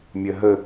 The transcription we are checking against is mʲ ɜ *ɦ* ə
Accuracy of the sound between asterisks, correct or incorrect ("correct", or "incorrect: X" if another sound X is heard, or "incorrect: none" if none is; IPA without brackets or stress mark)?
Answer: correct